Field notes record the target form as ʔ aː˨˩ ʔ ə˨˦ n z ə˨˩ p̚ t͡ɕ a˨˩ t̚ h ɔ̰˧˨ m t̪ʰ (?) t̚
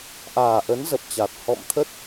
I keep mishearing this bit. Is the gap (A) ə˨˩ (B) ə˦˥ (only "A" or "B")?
B